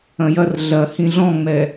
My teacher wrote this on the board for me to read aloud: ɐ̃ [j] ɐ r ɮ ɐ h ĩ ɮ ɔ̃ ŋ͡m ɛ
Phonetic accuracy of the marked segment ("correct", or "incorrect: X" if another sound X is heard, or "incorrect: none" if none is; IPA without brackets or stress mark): correct